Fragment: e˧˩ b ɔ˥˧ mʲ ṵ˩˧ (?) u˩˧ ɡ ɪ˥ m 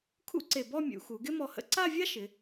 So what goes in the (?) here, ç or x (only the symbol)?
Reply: x